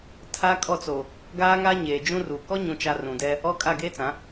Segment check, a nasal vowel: present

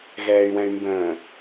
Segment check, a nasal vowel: present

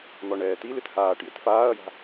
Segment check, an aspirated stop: absent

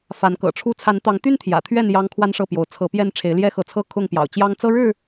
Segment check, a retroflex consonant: present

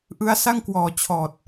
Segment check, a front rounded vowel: absent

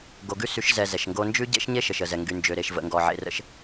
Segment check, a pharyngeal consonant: present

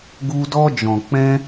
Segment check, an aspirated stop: absent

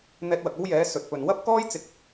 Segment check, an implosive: absent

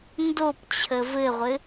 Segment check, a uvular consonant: present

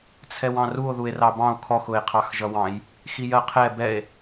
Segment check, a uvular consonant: present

